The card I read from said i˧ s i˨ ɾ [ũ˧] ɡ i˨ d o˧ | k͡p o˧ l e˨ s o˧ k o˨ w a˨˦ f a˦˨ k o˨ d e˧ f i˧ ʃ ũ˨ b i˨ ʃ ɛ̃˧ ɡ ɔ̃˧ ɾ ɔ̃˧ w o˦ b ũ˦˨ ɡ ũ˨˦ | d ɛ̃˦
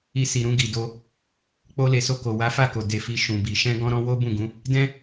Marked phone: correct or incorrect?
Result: correct